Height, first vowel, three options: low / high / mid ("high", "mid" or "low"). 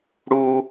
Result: high